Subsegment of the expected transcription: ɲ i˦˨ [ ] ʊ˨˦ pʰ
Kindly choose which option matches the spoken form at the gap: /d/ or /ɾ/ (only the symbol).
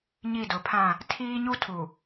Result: d